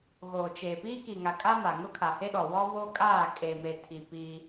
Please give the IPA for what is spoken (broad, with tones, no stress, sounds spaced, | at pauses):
ɣ oː˨ t͡ʃ eː˨ p iː˦ k i˨ ŋ a˨ kʼ a˦ m a˨ ŋ ʊ˦ kʰ a˨ h e˦ ɗ ɔ˨ w ɔ˦ β o˦ kʼ aː˦˨ kʼ e˨ m eː˨ tʰ i˨ p iː˦